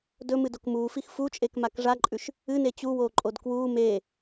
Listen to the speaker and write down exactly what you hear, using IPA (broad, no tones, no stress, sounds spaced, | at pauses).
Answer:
d ɵ m ɨ d o k m uː f i x f u t͡ʃʼ e k m a k ʐ a ǃʼ ʉ ʃ | ɨ n e t͡ɕ u w oː ǃʼ o d k w uː m eː